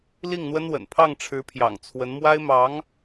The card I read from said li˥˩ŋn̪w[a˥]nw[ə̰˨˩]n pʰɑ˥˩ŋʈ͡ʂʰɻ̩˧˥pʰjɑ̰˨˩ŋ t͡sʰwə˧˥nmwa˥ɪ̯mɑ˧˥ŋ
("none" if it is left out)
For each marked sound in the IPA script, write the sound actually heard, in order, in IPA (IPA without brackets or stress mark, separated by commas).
ə˥, ə̰˨˩